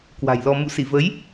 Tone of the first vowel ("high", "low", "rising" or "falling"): low